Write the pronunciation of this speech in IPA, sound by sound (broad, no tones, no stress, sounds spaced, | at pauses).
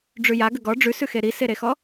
ɖ͡ʐ ʉ j a ɡ ə ɡ ɔ ɖ͡ʐ ʉ s ʉ x e ɾ i s e ɾ e x ɔ